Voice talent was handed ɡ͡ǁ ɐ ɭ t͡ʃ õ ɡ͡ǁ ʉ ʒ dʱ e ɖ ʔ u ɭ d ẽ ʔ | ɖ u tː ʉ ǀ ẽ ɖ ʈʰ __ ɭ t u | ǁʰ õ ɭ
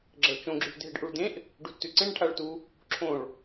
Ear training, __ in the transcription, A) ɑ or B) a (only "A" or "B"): B